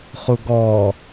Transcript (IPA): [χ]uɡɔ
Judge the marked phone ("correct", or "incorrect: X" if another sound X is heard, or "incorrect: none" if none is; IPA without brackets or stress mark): correct